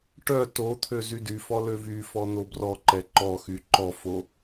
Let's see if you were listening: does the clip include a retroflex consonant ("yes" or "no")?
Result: yes